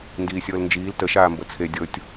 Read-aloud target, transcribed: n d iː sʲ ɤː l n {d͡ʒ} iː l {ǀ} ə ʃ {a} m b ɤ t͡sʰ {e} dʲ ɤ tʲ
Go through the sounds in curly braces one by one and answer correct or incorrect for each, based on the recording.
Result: correct, incorrect: t, incorrect: aː, correct

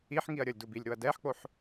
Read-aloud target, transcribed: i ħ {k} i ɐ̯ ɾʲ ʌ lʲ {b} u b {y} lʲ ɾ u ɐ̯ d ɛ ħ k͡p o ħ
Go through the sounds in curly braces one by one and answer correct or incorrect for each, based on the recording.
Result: incorrect: ŋ, incorrect: d, incorrect: i

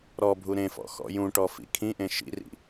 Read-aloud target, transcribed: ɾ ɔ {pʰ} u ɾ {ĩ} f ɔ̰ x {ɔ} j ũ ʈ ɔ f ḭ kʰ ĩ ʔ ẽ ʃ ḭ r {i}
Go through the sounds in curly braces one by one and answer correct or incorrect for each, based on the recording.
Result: incorrect: bʱ, incorrect: ẽ, incorrect: ɔ̰, incorrect: ḭ

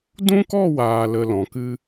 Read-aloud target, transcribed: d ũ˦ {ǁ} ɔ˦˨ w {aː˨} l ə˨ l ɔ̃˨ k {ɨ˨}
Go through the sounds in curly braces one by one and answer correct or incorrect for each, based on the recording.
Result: incorrect: k, correct, incorrect: ɨ˦

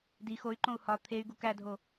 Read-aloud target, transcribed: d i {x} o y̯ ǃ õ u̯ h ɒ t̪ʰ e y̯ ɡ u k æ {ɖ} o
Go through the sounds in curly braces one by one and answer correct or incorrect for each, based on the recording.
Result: correct, incorrect: dʱ

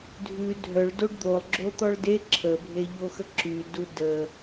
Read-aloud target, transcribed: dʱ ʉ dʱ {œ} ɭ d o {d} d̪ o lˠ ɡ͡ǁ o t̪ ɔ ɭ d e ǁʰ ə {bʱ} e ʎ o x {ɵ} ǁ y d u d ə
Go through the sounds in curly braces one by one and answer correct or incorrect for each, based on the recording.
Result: correct, incorrect: ɖ, correct, incorrect: ə

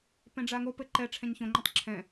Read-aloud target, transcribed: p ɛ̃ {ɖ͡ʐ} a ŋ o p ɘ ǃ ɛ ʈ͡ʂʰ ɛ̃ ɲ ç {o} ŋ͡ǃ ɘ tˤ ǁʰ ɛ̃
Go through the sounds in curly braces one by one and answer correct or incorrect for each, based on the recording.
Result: correct, incorrect: õ

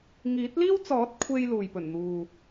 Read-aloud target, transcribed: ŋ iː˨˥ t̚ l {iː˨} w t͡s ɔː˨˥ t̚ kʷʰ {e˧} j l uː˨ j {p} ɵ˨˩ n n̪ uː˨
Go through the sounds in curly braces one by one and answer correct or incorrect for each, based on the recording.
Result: incorrect: iː˥, incorrect: e˥, correct

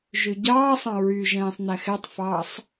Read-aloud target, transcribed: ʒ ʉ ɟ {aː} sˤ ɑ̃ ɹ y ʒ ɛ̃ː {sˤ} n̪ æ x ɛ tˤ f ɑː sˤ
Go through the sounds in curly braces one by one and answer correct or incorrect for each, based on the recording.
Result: incorrect: ɑː, correct

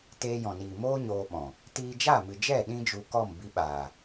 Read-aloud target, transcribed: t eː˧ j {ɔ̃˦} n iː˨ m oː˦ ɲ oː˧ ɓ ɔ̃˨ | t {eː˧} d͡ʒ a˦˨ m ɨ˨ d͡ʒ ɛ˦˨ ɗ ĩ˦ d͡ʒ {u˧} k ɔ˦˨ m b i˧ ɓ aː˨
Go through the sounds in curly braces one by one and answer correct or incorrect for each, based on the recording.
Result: incorrect: ɔ̃˨, incorrect: iː˧, correct

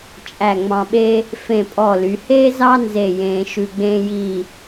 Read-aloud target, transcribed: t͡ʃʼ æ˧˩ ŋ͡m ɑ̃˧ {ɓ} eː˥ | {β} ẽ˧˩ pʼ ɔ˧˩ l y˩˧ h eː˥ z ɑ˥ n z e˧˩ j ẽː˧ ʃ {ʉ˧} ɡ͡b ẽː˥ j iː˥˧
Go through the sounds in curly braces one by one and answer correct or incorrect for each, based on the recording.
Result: correct, incorrect: f, correct

